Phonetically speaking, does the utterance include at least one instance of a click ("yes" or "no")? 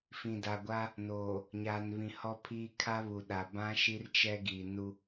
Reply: no